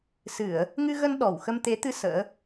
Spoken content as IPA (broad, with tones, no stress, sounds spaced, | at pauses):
s ɨ˧˩˨ ə̯ | ŋ ɨ˧ ɣ ə˧ n ɗ ɔ˧˩ w x ə˧ m t̪ e˨˦ t̪ ɨ˧ s ə̰ː˧˥